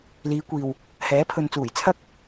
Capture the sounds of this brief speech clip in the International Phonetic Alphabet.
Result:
l iː˨˧ kʷ iː˨ w | h ɛː˨˥ pʰ ɵ˨ n t͡s uː˨˩ j t͡sʰ ɐ˥ k̚

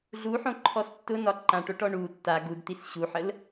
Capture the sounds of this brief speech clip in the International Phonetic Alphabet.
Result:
ɮ u ħ õ ǃʰ ɔ s tː ʊ n ɒ ǃ ã ʈ o ʈ ɔ ɳ u tː a ɡ u d t̪ i s ɕ u ħ ə l

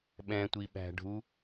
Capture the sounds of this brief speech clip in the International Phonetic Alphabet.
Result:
ɓ ɛ̃ tʷ i ɓ æ̤ ɖʱ u

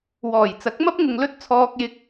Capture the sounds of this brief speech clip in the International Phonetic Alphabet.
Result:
w ɔː˨˩ j t͡s ɐ˨˥ k̚ m ɐ˥ p̚ ŋ ʊ˧ ŋ l ɵ˥ t̚ t͡sʰ ɔː˧ k̚ j ɪ˧ k̚

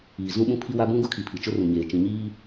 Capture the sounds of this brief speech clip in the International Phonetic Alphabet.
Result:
iː˨ z ũ˦ ɓ ũ˦ pʰ i˦ w a˦ b ũ˦ ɡ ʊ˦ kʰ i˨ pʰ i˨ t͡ʃ ʊ˦ r ũ˨ ɲ eː˨ t͡ʃ ĩ˨ ɲ iː˦

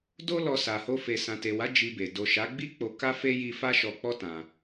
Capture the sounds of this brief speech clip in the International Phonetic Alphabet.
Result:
d o˦ l ɔ˧ s a˨ h o˧ f e˨ s ã˨ t e˨ w a˨˦ d͡ʒ i˧ b e˨ d o˨ ʃ a˨˦ ɡ͡b i˦ k͡p o˧ k a˦ f e˦ j i˧ f a˦ ʃ ɔ˧ k͡p ɔ˦ t ã˧

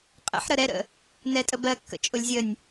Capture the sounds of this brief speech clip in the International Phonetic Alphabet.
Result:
qʼ ə̰ ħ ɾ ə ɾ ɛ ɾ ə̰ | n ɛ tʼ ə b ɜ kː ə̰ t͡ʃʼ ʊ lʲ zʲ ə nʲ

